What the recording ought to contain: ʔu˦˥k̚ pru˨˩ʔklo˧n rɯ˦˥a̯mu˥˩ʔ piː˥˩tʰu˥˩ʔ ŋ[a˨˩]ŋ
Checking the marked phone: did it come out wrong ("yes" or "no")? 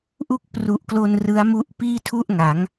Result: yes